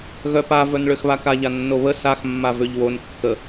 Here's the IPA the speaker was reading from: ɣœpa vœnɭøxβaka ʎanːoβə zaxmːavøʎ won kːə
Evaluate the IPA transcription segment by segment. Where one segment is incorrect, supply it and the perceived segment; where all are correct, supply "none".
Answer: z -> s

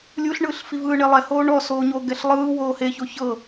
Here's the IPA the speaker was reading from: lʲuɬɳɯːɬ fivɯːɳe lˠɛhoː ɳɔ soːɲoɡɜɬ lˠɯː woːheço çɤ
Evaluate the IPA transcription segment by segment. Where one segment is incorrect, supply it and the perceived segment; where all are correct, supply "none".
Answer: ɜ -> ɛ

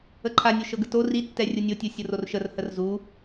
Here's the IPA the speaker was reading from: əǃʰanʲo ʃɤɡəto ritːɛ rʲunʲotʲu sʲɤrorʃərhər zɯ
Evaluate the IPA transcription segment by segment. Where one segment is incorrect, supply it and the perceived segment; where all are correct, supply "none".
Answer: ɯ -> u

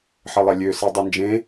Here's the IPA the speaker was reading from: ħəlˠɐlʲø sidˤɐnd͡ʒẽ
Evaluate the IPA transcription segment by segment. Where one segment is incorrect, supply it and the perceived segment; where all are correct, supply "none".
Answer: none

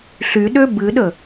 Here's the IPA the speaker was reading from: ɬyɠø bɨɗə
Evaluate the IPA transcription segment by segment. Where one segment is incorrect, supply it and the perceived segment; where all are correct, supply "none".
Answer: ɠ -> ɗ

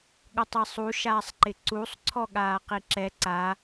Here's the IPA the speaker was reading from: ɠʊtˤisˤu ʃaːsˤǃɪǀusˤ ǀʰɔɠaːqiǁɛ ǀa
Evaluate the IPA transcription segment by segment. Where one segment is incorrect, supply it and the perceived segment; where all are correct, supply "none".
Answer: none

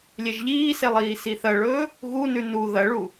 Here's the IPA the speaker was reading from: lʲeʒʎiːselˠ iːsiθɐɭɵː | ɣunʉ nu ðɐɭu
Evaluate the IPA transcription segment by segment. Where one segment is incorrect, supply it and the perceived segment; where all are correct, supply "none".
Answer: none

